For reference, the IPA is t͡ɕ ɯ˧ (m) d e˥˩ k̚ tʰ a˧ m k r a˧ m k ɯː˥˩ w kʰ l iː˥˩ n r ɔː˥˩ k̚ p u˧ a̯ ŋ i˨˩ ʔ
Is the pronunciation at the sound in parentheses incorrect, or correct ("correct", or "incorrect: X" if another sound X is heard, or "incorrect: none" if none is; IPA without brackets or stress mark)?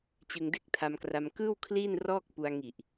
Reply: incorrect: ŋ